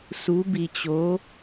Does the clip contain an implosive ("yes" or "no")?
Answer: no